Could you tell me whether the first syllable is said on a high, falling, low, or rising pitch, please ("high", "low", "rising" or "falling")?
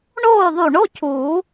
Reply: falling